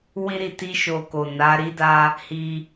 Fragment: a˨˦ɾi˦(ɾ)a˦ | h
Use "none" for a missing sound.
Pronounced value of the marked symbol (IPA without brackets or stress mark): d